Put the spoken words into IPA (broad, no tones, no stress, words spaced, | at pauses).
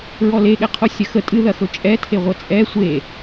ɹɔleɠɛqʰo sʲɐxə tʼɨðɐxɵ t͡ʃʼɛtʰe ʁʷɐt͡sʼɛ sʷe